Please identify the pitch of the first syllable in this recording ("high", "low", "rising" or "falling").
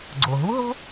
low